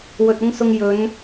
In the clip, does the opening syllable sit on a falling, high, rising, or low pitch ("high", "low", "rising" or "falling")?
low